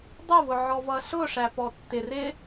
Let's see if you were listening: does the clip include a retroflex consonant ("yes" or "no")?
yes